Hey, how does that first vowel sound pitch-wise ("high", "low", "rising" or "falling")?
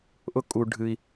high